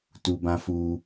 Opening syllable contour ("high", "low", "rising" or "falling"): high